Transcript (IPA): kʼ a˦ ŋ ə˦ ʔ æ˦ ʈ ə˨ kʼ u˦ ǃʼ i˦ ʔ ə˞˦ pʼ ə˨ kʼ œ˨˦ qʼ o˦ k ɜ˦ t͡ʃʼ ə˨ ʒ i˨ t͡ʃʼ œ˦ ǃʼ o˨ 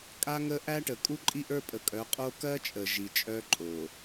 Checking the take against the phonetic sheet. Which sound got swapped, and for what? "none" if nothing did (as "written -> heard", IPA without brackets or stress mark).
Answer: none